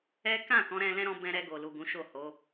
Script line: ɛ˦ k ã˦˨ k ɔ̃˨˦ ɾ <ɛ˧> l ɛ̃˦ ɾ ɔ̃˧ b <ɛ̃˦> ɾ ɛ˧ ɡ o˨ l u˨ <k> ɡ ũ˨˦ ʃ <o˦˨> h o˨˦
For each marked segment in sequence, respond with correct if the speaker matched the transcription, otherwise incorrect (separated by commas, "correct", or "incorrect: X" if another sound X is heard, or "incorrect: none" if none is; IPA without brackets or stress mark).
incorrect: ɛ̃˧, incorrect: ɛ̃˧, incorrect: none, correct